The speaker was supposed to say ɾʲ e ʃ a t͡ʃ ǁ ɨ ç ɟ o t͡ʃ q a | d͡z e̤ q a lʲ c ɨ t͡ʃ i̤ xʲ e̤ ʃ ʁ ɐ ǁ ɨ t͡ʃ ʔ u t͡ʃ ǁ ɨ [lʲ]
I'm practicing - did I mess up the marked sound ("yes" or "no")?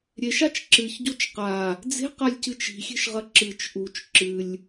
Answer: no